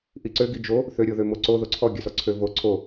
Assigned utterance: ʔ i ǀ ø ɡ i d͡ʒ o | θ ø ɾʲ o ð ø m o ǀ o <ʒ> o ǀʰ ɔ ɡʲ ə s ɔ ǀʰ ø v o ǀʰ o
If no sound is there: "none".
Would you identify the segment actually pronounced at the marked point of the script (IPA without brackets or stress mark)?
ð